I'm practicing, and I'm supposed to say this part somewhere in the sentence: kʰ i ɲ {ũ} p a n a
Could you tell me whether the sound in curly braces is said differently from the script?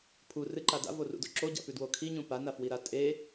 no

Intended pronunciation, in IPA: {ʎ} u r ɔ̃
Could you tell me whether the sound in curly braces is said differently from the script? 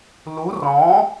yes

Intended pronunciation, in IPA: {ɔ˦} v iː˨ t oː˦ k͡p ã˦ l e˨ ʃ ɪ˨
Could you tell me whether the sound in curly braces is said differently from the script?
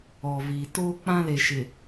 yes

